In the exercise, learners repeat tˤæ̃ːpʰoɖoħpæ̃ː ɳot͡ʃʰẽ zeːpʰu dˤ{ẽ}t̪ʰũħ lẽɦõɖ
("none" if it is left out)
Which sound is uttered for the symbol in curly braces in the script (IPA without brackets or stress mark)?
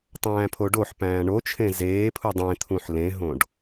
ẽ